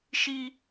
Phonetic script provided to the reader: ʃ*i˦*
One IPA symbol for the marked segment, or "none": i˦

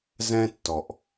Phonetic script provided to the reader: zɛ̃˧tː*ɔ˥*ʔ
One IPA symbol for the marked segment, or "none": ɔ˩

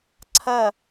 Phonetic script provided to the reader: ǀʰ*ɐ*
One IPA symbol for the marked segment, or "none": ɐ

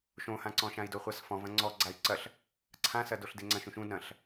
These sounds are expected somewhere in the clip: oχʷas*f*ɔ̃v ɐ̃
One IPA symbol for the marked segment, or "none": f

